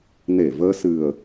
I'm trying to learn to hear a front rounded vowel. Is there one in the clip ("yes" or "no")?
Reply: no